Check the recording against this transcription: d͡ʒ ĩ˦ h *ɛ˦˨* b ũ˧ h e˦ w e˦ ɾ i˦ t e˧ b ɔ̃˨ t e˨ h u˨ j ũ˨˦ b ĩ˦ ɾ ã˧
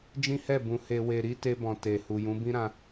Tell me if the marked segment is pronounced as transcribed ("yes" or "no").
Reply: yes